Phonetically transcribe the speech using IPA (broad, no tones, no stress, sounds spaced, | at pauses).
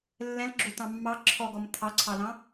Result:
lː ɛ̃ l ɡ͡ǁ o t ɑ̃ mː ɑ ǁʰ ɔ ɡ ɔ m t̪ʰ ɑ ǀʰ ɑ l ɑ̃